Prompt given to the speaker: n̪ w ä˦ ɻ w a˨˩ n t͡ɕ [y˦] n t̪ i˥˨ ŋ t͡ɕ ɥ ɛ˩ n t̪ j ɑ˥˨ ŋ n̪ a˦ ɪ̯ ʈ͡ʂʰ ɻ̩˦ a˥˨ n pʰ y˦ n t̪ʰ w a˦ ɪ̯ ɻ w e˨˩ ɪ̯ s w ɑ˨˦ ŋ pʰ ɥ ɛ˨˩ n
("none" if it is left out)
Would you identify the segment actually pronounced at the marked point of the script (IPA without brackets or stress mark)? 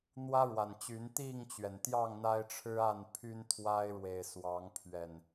y˨˦